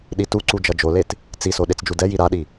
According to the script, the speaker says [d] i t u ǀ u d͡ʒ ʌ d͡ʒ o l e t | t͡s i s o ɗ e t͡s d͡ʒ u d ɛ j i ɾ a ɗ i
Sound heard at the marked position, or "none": ɗ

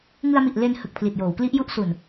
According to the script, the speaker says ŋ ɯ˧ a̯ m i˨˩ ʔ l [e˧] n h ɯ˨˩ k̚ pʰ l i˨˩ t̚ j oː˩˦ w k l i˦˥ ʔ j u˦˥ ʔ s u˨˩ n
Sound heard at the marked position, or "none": e˧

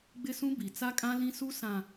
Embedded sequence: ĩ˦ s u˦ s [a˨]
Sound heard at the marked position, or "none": ã˨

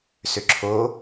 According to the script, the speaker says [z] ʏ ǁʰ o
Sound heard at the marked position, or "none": s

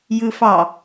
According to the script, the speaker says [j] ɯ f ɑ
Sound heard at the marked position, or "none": j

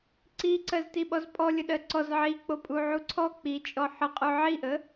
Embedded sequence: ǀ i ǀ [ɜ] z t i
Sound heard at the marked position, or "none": ɜ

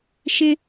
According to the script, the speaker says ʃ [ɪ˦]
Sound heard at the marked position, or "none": ɪ˦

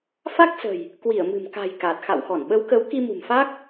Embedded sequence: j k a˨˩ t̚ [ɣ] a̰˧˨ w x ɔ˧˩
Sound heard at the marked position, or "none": x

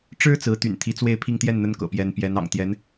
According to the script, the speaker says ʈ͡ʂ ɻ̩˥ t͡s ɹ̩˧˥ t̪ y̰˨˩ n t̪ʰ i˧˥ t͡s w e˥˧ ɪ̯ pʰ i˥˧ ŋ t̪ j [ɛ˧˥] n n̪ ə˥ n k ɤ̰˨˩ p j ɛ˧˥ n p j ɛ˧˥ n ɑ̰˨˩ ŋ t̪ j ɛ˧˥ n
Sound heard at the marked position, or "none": ɛ˥˩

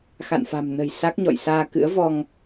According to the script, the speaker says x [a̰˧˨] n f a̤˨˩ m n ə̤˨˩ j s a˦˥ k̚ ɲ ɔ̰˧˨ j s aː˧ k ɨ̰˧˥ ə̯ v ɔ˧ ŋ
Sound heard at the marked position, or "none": a̰˧˨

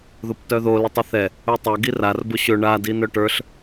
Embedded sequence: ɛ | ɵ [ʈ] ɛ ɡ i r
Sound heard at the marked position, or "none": tˤ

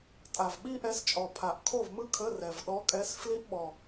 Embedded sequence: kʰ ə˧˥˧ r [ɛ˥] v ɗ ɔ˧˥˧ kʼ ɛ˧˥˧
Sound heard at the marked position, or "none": ɛ˨˩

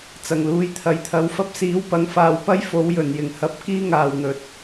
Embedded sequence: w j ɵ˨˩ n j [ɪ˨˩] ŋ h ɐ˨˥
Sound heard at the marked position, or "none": ɪ˨˩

